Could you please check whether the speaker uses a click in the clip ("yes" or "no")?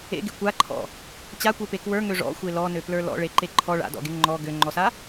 yes